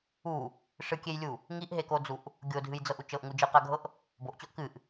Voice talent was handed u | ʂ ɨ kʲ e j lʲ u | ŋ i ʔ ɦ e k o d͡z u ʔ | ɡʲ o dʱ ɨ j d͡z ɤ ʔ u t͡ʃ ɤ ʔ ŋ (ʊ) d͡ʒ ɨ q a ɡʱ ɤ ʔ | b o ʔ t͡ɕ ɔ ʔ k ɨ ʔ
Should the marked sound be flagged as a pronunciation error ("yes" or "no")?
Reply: yes